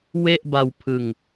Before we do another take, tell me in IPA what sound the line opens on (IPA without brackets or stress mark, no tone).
w